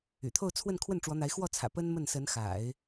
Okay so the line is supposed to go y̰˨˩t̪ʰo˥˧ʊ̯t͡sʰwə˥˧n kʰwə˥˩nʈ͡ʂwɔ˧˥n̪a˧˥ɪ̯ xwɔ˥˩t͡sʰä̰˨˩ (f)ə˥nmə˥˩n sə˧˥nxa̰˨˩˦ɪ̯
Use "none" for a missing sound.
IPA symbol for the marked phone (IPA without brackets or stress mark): p